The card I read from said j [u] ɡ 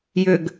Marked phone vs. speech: incorrect: ʏ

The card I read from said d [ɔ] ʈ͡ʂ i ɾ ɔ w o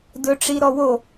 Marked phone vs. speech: incorrect: ɵ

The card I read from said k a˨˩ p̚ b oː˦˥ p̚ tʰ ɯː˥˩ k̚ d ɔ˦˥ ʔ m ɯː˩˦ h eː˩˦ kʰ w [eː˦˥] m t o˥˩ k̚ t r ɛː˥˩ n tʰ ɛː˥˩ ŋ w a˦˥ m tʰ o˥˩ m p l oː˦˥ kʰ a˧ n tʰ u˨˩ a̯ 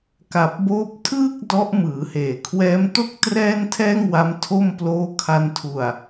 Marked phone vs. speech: incorrect: ɛː˦˥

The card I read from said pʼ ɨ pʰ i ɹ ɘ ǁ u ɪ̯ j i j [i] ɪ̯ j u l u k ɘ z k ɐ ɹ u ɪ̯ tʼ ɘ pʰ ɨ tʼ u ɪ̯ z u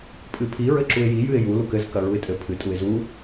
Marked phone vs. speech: incorrect: ɨ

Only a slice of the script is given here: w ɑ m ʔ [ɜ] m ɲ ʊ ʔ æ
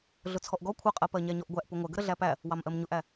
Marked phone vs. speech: correct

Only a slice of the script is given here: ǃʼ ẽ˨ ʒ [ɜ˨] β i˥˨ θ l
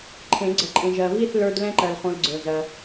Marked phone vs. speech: correct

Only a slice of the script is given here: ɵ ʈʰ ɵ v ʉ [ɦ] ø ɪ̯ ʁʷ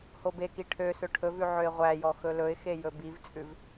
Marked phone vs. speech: incorrect: ʕ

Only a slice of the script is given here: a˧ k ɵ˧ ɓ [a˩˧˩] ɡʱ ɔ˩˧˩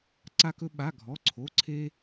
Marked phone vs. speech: correct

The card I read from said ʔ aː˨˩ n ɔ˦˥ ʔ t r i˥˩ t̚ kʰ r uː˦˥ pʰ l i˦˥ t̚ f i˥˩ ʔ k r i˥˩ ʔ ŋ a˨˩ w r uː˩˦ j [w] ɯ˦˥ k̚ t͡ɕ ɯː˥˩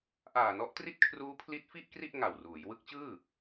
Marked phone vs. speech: correct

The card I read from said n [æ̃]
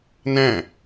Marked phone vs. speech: correct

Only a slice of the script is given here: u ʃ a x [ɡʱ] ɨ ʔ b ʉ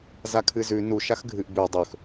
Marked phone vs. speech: correct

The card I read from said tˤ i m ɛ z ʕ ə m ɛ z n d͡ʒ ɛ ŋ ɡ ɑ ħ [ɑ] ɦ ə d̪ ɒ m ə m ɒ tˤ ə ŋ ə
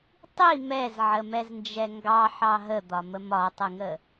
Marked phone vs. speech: correct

